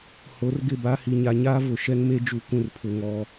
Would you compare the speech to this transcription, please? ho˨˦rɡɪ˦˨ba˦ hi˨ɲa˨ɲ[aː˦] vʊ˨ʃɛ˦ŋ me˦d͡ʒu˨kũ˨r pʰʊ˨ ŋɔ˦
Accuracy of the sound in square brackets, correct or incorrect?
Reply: correct